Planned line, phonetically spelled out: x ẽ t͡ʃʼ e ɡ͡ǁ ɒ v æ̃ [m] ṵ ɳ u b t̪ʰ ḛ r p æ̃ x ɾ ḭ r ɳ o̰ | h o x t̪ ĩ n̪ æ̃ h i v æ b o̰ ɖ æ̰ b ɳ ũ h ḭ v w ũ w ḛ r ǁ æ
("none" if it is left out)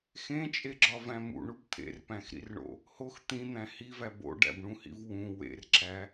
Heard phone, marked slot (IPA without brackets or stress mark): m